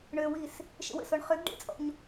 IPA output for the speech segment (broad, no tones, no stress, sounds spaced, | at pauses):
ɳ ø w i s | ʃ ə̰ w ə̰ s o ɳ χ ø ɡ ɖ ḛ t͡sʼ ɔ̰ ɲ